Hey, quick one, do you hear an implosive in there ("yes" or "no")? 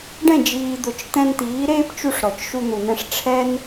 no